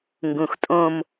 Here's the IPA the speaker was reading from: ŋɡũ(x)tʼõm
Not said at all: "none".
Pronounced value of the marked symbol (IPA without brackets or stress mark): x